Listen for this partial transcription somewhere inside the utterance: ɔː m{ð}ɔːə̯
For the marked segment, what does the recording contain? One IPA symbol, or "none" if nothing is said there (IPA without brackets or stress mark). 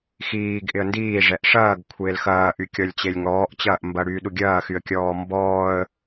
b